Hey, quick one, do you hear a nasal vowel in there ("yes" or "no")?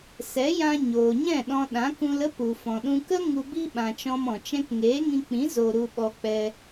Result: yes